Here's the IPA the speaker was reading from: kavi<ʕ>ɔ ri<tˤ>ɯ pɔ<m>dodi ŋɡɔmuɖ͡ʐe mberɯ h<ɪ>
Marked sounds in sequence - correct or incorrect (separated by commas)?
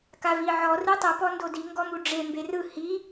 correct, correct, incorrect, incorrect